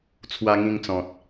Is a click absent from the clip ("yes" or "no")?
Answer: yes